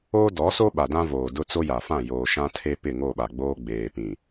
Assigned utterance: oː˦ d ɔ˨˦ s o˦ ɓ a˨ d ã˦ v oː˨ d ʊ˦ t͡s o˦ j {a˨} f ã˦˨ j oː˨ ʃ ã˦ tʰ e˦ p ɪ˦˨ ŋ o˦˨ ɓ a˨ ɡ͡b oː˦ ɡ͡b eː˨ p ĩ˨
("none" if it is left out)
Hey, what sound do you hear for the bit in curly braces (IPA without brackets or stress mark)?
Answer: a˨